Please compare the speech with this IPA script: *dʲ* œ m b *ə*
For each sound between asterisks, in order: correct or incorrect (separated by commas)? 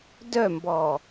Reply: incorrect, incorrect